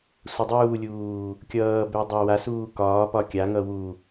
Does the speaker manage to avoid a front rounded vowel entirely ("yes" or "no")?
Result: no